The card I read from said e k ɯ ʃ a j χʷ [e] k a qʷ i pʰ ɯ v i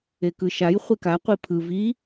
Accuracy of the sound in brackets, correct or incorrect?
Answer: correct